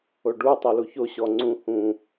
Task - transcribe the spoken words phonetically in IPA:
o ɖ u tˤ ɛ l u ç o ɕ ɔ ŋ͡ǀ ũ h ũ

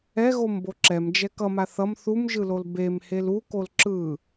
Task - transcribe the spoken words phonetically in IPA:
ɛ ɣ o m b o ǁ ɛ m d͡ʒ ɛ k ʌ m a θ ʌ m θ u m ʒ ɯ l o l b e m h e l u k o l ǁ ɯ

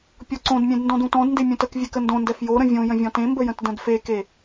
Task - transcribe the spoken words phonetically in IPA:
pʲ ɔ ǀ õ d mʲ ẽ d n d ɔ̃ d ũ t ɔ̃ d n d e mʲ ũ t ə k vʲ e k ə n d õ n d ɛ f j o ɾ ə̃ vʲ õ j ə̃ vʲ ɔ̃ t ẽ m b ə j ə̃ t d ə̃ d f e k e

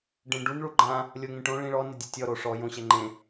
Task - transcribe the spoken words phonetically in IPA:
ɖ ẽ ɖ u n ɭ u ɡ͡ǃ ã | lʲ o ŋ ẽ ʈ õ ɭ ĩ ɭ ɔ n ɪ dʲ e tʲ ɔ ɾ o ʂ ɔ j õ ɕ ɛ ŋ͡ǃ ẽ

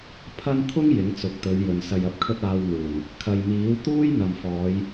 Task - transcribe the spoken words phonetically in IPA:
pʰ ɐ˥ n t̪ʰ ʊ˥ ŋ j ɪ˨˥ ŋ t͡s ʊ˨˥ k̚ t̪ ɵ˨˧ ɥ j ɵ˨ n s ɐ˧ j ɐ˧ p̚ kʰ ɵ˥ t̚ aː˧ w n̪ uː˨˩ n | kʰ ɐ˨ j m iː˨˥ w t̪ uː˥ j n̪ ɐ˨ m f ɔː˨˧ j

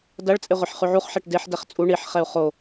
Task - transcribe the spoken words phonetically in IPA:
d ɐ ɭ t͡sʼ e ʁʷ ɛ ħ χ ʉ ʕ u χ ħ ɛ ʈ d e ħ d ɛ χ t͡sʼ u ɳ i ħ χ ɛ u̯ χ o

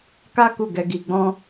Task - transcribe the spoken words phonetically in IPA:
k a˦ k u˦˨ ɡ ɛ˧ ɡ i˧ ɡ͡b ɔ̃˦

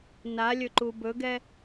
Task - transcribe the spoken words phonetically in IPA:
n a lʲ ɵ ǃ u b ɵ ɡ ɛ

